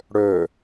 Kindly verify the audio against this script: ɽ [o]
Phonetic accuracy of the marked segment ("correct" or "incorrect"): incorrect